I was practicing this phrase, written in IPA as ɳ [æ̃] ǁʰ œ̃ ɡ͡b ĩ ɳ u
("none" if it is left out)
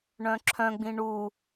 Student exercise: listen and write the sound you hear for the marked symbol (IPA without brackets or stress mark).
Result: œ̃